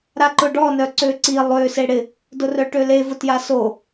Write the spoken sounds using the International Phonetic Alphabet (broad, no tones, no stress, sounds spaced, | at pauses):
ɾ a ǃ ʊ ɖ ɔ n œ ǀ ø ǀ i lˠ ø s e ɽ ɪ | d ʊ r œ ʈ ø l e v ʊ t j a s o